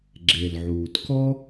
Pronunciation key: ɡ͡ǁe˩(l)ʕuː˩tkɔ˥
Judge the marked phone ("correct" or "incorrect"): correct